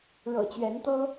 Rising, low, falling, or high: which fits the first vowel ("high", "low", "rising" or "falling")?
low